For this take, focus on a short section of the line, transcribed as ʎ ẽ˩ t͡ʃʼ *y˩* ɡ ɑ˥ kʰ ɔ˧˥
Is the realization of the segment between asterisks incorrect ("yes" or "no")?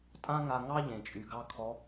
no